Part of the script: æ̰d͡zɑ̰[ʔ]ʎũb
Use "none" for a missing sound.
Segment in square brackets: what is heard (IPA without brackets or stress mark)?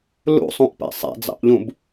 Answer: ʔ